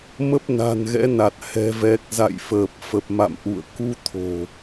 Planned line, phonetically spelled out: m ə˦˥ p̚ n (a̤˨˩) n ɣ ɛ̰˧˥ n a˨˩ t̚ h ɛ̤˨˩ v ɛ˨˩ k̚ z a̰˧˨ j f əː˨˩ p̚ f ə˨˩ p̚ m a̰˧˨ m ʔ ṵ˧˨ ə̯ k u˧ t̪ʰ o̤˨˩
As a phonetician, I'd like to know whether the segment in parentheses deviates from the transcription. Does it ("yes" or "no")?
no